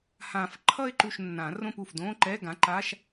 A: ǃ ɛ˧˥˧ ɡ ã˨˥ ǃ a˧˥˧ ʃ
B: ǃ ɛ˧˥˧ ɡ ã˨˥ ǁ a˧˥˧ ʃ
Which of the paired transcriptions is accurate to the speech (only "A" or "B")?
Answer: A